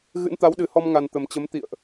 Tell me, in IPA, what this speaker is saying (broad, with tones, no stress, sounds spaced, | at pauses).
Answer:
ɣ ɨ̰˧˥ n t̪ a˨˦ w ɗ ɨ˨˩ h ɔ˧ m ŋ a˨˩ n t̪ ə˨˩ m t͡ɕ ə˨˦ m t̪ ḭ˧˨ ə̯ ʔ